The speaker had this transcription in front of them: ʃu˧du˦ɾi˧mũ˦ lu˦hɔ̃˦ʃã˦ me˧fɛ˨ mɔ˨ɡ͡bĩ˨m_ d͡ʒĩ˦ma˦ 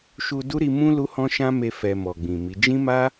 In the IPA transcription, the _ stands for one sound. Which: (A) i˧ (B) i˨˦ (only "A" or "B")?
B